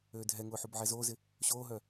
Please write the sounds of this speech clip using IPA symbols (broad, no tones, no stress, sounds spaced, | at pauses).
øː dʱ ɛ ŋ ʊː ħ u b ʕ ɛ z oː z ɪ | ɕ oː ɦ œ